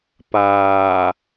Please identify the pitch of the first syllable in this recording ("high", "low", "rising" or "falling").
low